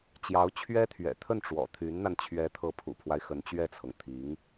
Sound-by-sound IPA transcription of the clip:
t͡ɕjɑ˧˥ʊ̯ t͡ɕʰɥɛ˥t̪ʰɥɛ̰˨˩t̪ʰə˥˩n ʈ͡ʂwɔ̰˨˩t̪ʰy˧˥nn̪a˧n t͡ɕʰɥɛ˧˥t̪ʰɤ˧˥pʰṵ˨˩pʰwa˦ɪ̯ xə˧˥nt͡ɕɥɛ˥˩t͡sʰɤ˩ŋ t̪ʰi˧˥ŋ

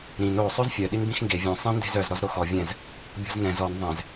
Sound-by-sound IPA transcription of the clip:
ɾĩn o sˤøzfʲœ ɗinbĩxŋɡe vʲœ̃ sˤĩ nde̤zœz ɾɔzɾoxɔ vʲɛ̃z | bʲɔ̤znɛ̃z ɔn ðˤɛ̃z

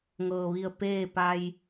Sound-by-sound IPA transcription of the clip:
ŋɤː˩ʋi˧˩ə̯ peː˥˨ pa˧j

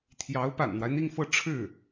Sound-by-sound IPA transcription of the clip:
t̪ʰjɑ˧˥ʊ̯ pa̰˨˩nn̪wa˦ɪ̯n̪i˥˧ŋfɤ˥˧ ʈ͡ʂʰɻ̩˥˩

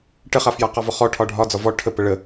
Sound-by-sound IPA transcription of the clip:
ʈəχafja qɒvɒχɔ ʈʰɒɖʱɒd͡zɒ vɔ ʈʰəpə ɭə

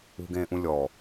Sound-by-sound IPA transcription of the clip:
ṳɡẽːʔũlʲɔ

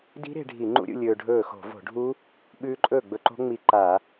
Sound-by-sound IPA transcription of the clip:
di̤˦˥ɾe̤˧ ɖʱi˧˩˧ŋ͡ǃṵ˦˥ɾʲṵ˧ lʲɵː˧ɖʱɵː˥˩ xo̤˧˩˧vo̤˧˩˧ɖʱu˦˥ | ɓʉː˦˥ǃʼɵː˥˩ ɡ͡bɵ˧ǃo̤˦˥ ŋ͡mi˧ǃa˧˩˧

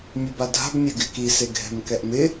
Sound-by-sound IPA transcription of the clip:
mʲɛbadʱa̤b mʲɛɡɪki seɡʱɛ̤mkɛʔmɪ

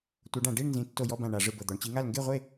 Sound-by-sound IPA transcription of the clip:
tʷɤ˨˦ɖã˧˩˧ ɖi˥˨ɳnzĩ˨˦ tːo˧˩jɔ˥˨bã˧˩ ɳa˧˩˧ʐɯ˧˩bɤ˧˩ d̪ɔ˧˩˧ɳt͡ɕi˨˦ŋa˥˨l ŋɡe˥˨ʁʷe˥˨

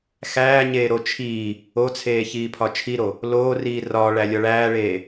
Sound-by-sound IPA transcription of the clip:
xæːɲeːɾo t͡ʃʰiː | ot͡sʰeːçiːpʰɒ t͡ʃʰiɾo | loːriː rɒːɭælʲɒ ɭæːɭeː

